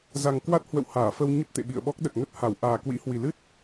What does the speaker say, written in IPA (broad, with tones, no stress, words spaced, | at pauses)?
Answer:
za˨˩ŋkwa˦˥t̚hwə̰˧˨w haː˧˩fə˧w ɲə˦˥p̚t̪ḛ˧˨ɓḭ˧˨ə̯ɓɔ˦˥k̚ ɗə˨˩t̚ŋə˦˥t̚ha˧˩w ʔaː˨˩kwḭ˧˥hwi˨˩lɨ˦˥t̚